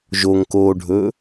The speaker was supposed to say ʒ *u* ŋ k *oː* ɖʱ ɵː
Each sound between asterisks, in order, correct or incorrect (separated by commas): incorrect, correct